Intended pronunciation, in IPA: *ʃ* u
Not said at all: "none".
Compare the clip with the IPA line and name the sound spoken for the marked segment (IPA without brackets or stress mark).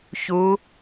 ç